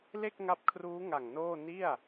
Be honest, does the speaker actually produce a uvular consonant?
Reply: no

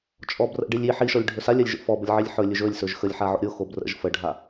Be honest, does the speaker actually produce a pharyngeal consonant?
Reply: yes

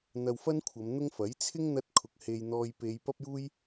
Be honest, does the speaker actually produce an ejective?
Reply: no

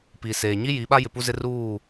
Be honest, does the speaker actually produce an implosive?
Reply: yes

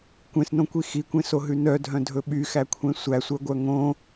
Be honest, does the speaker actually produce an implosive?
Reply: yes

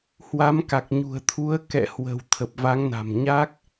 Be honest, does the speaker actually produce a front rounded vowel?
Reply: no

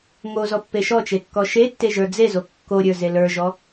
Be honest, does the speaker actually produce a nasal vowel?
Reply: no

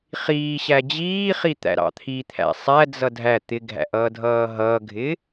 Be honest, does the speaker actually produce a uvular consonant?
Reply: yes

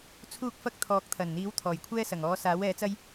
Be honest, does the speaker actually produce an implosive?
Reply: no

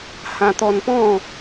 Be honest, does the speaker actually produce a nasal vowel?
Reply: yes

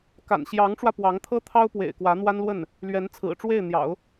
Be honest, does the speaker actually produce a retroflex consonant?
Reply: yes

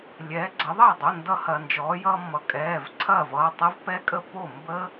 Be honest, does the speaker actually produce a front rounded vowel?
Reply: no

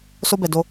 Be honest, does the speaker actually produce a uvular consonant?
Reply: no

